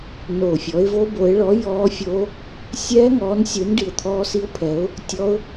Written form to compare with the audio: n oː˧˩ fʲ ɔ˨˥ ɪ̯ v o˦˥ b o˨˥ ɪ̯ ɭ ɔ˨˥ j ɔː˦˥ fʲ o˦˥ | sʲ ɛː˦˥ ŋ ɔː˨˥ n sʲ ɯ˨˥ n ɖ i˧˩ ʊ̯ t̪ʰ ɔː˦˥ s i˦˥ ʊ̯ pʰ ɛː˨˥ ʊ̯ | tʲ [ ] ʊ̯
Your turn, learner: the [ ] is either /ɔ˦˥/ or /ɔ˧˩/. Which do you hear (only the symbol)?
ɔ˦˥